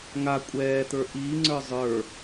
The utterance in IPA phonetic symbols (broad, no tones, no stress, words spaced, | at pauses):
ŋa kʷʼɛːt̪ə˞ ʔiːŋ͡ǀə˞ zˤə˞